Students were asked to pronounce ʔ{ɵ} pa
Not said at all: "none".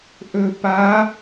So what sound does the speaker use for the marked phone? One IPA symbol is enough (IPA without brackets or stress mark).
ɵ